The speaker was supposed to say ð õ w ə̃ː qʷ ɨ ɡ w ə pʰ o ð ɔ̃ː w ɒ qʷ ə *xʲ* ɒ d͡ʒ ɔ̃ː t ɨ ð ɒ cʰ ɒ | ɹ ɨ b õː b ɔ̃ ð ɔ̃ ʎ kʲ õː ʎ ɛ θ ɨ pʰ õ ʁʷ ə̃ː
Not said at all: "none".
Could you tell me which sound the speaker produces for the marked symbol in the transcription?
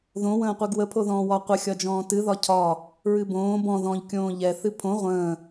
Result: xʲ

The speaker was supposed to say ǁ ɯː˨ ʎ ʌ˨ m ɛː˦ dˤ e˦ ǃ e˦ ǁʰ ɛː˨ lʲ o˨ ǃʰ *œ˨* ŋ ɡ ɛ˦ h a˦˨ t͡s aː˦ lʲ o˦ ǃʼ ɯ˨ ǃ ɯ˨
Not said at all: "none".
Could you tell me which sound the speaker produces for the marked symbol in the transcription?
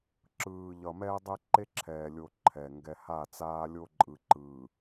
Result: ɛ˨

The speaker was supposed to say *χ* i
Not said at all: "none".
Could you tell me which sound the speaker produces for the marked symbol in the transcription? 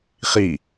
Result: χ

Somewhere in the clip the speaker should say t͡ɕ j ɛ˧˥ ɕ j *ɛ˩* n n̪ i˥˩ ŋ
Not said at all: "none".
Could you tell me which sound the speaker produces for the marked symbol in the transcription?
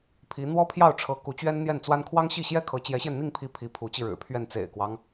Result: ɛ˧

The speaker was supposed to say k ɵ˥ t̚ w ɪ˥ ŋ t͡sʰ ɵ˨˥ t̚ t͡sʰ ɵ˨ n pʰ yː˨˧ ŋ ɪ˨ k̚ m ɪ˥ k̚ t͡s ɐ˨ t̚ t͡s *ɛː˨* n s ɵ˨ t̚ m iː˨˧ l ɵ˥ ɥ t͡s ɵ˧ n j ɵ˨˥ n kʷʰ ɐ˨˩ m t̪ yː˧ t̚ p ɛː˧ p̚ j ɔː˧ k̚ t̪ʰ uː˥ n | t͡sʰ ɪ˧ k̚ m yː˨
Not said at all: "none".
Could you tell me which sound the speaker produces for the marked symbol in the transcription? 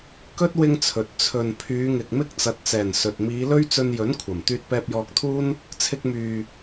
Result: ɛː˨˩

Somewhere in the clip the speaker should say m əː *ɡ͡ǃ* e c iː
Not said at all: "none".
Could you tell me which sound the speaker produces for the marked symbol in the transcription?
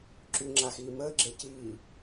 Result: ɡ͡ǁ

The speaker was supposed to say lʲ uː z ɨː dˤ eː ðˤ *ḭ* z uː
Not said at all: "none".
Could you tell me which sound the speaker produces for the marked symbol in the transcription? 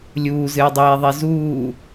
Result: i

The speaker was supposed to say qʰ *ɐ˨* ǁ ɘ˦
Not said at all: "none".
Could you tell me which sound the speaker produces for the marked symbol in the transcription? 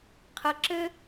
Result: ɐ˨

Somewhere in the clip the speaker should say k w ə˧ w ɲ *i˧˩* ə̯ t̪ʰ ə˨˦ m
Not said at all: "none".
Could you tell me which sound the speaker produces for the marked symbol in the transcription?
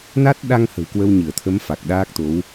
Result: ɨ˧˩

